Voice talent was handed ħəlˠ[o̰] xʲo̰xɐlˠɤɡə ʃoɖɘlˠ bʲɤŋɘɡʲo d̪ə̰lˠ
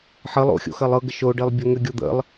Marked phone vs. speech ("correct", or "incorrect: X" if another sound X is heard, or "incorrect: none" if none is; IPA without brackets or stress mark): correct